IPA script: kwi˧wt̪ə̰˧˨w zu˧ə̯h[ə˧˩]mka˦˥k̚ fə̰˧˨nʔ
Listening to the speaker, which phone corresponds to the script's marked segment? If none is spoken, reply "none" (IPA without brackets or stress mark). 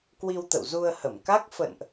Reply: ə˧˩